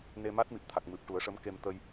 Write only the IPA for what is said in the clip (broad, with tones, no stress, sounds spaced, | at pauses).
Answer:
n e˧ m a˦˥ t̚ m i˨˩ p̚ t̪ʰ a˨˩ k̚ m ɨ˨˩ p̚ ʈ u˨˩˦ ə̯ ʂ ə˧˥ m k e˧ m t̪ ə˧ j